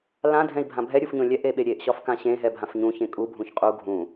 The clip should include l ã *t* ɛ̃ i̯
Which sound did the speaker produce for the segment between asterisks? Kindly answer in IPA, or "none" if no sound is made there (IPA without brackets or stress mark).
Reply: dʱ